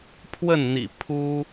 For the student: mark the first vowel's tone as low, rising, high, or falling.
falling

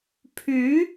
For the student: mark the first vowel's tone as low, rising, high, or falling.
rising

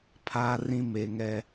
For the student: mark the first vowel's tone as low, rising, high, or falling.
high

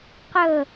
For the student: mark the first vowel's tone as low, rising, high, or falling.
falling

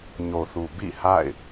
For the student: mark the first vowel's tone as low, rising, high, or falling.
low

